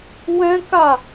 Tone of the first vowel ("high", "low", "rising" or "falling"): high